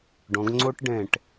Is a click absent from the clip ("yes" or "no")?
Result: no